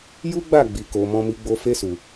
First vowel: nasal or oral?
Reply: oral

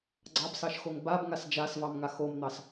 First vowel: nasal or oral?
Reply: oral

